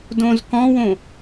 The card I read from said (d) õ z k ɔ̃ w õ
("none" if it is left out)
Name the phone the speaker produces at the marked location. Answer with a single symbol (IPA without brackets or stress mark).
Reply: d